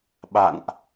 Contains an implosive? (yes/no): yes